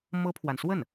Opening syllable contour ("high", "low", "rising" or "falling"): high